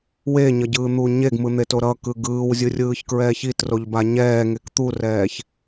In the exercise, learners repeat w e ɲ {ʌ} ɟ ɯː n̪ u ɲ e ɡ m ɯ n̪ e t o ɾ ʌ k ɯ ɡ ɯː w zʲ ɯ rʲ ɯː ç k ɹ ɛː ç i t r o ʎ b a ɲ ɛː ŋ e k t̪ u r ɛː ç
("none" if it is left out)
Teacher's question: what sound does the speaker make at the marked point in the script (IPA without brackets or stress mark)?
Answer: ʌ